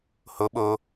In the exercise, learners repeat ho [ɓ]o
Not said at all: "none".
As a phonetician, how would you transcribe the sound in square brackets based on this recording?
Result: ɓ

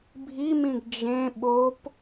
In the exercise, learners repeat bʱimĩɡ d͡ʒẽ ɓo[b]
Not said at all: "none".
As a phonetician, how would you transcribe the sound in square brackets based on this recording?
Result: p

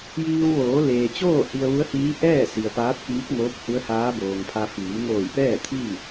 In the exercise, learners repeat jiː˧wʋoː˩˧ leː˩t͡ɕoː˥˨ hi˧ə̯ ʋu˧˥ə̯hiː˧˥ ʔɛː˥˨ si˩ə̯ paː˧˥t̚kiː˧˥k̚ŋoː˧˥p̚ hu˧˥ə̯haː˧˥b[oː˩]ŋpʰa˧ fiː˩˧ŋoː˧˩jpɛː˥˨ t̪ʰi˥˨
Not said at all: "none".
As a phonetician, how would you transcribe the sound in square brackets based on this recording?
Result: oː˩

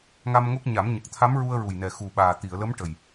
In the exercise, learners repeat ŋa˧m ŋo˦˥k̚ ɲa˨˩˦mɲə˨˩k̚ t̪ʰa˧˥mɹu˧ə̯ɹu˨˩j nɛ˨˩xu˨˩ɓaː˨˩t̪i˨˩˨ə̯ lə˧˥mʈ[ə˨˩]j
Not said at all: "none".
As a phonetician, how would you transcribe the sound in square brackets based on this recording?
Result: ə˨˩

